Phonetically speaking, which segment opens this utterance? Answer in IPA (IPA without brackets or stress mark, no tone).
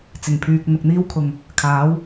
t͡s